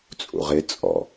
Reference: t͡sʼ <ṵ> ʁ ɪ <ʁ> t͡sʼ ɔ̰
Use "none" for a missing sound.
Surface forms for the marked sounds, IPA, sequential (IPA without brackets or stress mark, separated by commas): ṵ, none